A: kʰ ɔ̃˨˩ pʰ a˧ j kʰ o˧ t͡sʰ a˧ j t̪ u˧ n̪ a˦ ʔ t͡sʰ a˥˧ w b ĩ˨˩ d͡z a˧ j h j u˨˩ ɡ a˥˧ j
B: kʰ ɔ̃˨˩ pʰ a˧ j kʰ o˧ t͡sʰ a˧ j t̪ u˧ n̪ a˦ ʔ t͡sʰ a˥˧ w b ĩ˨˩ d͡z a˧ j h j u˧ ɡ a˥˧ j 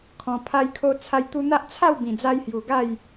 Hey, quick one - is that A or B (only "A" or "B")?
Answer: A